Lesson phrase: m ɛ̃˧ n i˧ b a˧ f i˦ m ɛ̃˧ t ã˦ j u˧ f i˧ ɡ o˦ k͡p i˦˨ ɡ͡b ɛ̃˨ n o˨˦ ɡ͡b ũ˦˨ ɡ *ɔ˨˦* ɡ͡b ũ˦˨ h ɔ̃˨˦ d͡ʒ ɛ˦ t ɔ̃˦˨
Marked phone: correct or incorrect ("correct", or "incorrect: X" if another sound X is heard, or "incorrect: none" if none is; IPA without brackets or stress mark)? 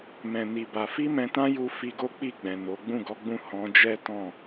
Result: correct